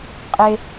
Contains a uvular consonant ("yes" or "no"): yes